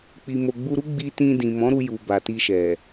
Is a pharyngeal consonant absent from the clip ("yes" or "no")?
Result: yes